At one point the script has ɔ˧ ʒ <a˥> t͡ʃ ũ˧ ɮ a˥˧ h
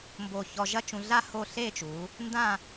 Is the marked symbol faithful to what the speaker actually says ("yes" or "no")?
no